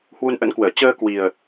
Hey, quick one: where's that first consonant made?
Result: throat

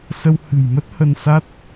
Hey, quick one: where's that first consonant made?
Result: tongue tip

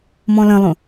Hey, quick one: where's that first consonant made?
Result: lips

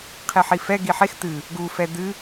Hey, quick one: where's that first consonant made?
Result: uvula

